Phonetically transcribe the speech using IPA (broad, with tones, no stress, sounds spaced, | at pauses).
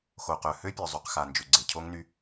x o˨ q œ˨ h ø˦ pʲ œ˨ zˤ y˨ q x a˨ n d͡ʒ ʏ˨ ɡ͡ǀ e˨ cʰ o˦ ŋ n y˦